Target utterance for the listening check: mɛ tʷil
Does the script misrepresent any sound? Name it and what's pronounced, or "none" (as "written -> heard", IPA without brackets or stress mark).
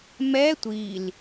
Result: none